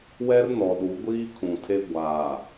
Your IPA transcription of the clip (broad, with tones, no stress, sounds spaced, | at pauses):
w ɛ˦ r n ɔ˨ ɗ u˨˦ ɡʷ iː˦ kʰ ũ˨ tʰ e˦ ɡʷ aː˨